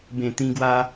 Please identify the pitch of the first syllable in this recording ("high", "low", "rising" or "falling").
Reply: low